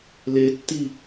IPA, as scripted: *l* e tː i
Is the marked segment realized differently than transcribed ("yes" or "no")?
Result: no